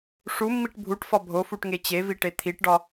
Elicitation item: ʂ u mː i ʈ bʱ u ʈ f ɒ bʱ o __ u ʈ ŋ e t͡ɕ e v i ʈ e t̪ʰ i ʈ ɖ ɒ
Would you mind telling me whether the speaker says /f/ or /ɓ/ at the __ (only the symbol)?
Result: f